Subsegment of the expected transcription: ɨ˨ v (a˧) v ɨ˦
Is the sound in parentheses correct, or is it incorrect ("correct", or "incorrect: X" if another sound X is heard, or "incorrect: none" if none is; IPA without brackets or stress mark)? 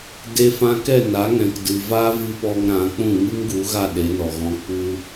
incorrect: a˦